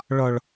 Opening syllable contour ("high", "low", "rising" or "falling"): high